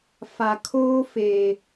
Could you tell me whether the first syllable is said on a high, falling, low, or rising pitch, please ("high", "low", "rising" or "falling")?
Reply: low